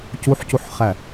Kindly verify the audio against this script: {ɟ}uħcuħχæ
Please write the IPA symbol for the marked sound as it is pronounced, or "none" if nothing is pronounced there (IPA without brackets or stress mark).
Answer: c